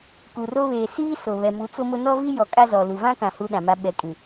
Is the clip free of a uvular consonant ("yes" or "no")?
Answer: yes